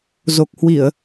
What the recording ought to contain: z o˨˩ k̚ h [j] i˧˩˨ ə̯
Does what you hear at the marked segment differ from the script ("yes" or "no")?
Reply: yes